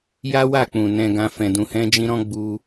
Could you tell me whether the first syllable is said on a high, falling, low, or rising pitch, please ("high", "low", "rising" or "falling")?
high